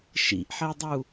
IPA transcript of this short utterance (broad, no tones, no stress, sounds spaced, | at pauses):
ʃ ḭ ʔ ħ ɛ dˤ u